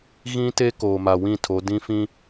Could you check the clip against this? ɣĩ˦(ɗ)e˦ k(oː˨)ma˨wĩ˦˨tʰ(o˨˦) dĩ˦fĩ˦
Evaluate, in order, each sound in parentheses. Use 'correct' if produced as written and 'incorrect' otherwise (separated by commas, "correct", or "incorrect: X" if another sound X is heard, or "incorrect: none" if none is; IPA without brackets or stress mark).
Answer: incorrect: t, correct, correct